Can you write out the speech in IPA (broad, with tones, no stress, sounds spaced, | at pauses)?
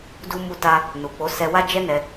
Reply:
d u˧ m u˧ t a˧ | n u˨ k͡p o˨˦ s ɛ˧ w a˦ d͡ʒ ɛ˦ n ɛ˧